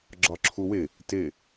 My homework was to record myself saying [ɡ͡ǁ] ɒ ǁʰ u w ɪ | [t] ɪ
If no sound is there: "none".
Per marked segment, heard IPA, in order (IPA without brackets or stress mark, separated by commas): ɡ͡ǁ, t